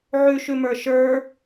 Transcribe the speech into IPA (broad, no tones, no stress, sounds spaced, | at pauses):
ʕ ʉ ʃ ʉ m ə˞ ʃ ə˞